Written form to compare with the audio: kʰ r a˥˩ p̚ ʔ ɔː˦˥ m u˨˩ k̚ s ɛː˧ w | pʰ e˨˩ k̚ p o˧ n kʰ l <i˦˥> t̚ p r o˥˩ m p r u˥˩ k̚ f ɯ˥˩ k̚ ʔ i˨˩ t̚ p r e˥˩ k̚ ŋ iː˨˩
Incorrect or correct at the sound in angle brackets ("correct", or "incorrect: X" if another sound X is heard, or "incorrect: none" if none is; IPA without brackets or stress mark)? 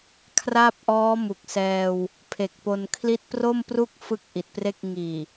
correct